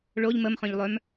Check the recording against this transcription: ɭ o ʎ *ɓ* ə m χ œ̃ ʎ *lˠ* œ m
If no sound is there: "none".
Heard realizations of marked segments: m, lˠ

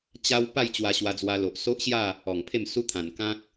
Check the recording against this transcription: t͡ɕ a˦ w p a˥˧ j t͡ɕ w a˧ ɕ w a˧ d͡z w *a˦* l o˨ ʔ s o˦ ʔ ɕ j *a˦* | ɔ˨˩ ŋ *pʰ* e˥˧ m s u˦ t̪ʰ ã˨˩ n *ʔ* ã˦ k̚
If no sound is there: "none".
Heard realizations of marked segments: a˧, a˥˧, pʰ, k

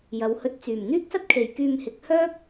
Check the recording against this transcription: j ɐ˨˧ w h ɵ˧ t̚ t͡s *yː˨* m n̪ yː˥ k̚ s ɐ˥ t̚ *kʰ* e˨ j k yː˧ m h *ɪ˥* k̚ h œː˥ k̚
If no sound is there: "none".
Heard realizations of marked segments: yː˨˩, kʰ, ɪ˨˥

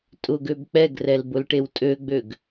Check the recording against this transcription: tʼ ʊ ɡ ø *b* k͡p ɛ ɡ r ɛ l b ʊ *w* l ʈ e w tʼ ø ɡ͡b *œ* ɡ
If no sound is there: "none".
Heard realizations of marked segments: b, none, ø

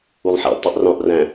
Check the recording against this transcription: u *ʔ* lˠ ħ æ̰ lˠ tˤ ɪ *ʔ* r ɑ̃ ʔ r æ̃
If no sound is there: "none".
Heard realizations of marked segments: none, ʔ

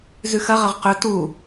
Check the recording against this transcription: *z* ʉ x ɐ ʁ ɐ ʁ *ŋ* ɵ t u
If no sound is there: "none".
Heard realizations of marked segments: z, q

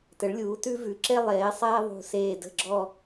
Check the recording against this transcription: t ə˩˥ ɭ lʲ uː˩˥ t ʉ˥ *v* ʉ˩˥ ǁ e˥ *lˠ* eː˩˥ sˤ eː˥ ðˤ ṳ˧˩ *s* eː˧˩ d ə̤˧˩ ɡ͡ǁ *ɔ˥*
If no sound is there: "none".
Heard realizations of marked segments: v, lˠ, s, ɔ˧˩

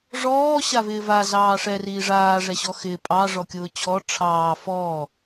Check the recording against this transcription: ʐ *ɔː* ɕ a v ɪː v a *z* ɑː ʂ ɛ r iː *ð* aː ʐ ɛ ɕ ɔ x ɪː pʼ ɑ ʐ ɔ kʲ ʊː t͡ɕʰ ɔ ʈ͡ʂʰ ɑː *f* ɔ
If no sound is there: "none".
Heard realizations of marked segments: ɔː, z, ʐ, f

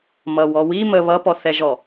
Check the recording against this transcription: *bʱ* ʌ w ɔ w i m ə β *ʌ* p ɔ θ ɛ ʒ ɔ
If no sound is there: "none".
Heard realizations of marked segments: m, ʌ

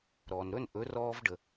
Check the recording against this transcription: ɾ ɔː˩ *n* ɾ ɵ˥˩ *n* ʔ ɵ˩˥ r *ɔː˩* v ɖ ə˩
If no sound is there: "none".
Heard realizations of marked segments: n, n, ɔː˧

